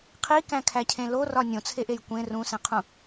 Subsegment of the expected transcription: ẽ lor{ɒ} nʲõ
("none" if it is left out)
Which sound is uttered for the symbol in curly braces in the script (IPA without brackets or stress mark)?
ɒ